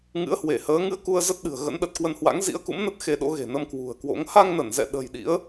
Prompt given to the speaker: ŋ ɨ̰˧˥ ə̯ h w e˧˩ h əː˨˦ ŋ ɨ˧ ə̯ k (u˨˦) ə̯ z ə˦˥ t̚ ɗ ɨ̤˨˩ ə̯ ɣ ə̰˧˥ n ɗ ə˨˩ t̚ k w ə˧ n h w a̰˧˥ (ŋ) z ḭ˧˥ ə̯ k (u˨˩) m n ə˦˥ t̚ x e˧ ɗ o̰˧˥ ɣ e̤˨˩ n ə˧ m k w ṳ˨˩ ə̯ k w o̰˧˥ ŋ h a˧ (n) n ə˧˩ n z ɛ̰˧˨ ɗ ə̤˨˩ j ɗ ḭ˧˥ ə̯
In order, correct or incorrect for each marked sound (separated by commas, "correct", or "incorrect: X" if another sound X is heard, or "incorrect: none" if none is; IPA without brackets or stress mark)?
incorrect: u˧, correct, incorrect: ṵ˧˥, incorrect: ŋ